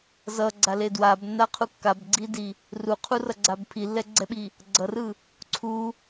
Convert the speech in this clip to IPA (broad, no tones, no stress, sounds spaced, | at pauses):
z ʌ ɡ͡ǀ a l e d w a b nː a qʰ u kː a b ɡ͡ǀ i d i | r u qʰ u r ʌ ɡ͡ǀ a b pʰ i lː ɛ ɡ͡ǀ ɛ ɓ i | ɡ͡ǀ ʌ r ɯ | ǀʰ u